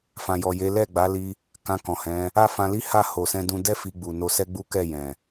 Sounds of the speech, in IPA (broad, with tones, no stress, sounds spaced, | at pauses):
f ã˨ j ɔ˨ j e˨˦ l ɛ˦˨ ɡ͡b a˨˦ l i˧ | k ã˧ k ɔ̃˨ h ɛ̃˨˦ | a˦ f ã˧ l i˦ h a˦˨ h o˨ s ɛ̃˧ d ũ˧ d ɛ˦ f i˧ ɡ͡b u˨ n o˧ s ɛ˦ ɡ͡b u˦ k ɛ˦˨ j ɛ̃˨